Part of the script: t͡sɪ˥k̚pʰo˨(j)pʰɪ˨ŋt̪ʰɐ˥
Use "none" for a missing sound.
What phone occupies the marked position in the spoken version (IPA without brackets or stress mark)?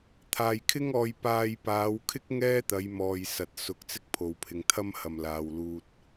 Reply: w